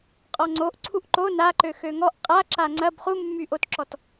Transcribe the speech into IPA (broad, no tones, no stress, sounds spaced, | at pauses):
qʼ ɔ ŋ͡ǀ o ʔ ǀʰ u ʔ ǃ o n a ǃ ø x ø ŋ ɔ ʔ qʼ a ǁ a ŋ͡ǀ ɐ b χ u mː y ʔ o t ǁ ɔ t